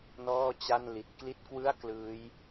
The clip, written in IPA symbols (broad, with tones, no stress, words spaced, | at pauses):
nɔː˥˩t͡ɕa˥˩n li˨˩t̚kli˥˩t̚kwɯ˥˩a̯ klɯː˦˥j